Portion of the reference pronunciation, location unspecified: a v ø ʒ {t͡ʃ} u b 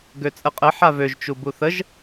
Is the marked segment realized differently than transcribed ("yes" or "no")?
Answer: no